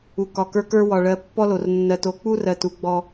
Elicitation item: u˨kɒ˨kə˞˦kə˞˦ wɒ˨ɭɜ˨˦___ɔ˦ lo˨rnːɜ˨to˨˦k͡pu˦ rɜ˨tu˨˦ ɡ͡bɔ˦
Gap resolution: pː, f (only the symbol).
pː